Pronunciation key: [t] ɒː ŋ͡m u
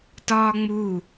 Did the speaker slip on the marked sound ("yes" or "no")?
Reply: no